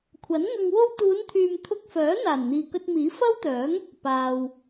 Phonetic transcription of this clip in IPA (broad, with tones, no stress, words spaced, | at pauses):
kʷʰɐ˨˥nŋɐ˧ŋ wo˧wt̪uː˨˧nt̪ʰyː˨m t̪ʰʊ˧k̚fœː˨˥ n̪aː˨˩nn̪iː˨kɵ˧t̚miː˨˥ fɐ˥wt̪œː˨˥ŋ | paː˨w